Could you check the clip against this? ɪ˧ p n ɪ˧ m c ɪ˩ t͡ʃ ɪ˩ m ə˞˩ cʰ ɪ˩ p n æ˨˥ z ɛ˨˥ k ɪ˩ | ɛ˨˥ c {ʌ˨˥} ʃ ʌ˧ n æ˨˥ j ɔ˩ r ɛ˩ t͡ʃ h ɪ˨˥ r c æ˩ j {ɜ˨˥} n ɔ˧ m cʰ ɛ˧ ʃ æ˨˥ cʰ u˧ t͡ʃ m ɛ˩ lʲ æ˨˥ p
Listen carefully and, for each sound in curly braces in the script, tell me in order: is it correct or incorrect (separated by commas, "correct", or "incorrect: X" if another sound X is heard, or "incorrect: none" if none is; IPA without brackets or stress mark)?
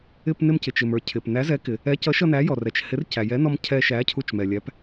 correct, incorrect: ɛ˨˥